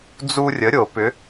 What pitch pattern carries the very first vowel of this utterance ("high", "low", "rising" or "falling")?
high